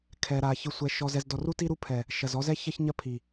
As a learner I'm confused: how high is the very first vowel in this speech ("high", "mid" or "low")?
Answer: mid